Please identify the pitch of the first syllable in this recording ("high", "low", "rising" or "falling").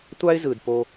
high